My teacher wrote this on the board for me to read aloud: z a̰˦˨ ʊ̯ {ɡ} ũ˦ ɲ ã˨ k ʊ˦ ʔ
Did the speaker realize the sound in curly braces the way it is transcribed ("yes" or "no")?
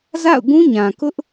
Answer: yes